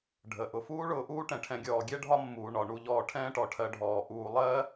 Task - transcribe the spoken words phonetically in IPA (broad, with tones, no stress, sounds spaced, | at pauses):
ɖʱ ə˩ ʔ ʊ˨ f uː˥ ɭ ʊː˨ ʔ uː˥ ʈ ɛ̃˩ ʈʰ ɛ̃˨ ɡʲ ɔː˩ ɡʲ ɛ˥ ɖʱ ɒ˦ mː uː˩ ɳ ɒ˩ ɳ u˨ ʎ ɔː˨ ʈʰ ɛ̃ː˦ ʈ ɔ˩ ʈʰ ɜ˨ ɖʱ ɔː˩ ʔ uː˨ lˠ ɜ˥